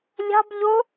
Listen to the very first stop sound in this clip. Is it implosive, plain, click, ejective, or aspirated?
plain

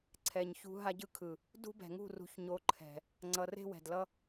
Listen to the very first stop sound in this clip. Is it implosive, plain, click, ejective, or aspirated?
click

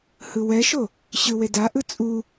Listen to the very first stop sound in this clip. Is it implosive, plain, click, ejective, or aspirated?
plain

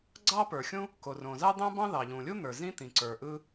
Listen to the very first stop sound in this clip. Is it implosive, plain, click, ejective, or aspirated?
click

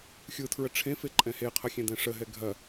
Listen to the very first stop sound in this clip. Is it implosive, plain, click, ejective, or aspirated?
aspirated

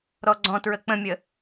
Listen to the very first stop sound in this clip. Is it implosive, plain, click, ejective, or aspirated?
click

